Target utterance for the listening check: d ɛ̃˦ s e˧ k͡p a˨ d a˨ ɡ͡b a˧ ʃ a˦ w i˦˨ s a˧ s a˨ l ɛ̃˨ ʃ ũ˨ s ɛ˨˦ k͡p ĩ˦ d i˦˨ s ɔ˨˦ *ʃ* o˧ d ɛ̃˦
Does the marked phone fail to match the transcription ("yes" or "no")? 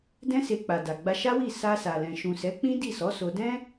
yes